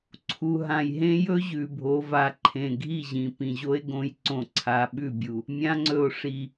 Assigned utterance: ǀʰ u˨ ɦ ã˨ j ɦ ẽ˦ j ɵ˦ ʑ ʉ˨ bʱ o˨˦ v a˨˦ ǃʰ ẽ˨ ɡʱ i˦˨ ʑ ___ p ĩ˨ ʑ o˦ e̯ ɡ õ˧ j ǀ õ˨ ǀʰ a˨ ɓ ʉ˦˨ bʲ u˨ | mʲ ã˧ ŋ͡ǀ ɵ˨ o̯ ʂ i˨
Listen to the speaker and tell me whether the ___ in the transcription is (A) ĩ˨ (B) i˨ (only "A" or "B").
A